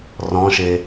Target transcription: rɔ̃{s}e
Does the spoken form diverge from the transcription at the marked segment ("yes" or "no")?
yes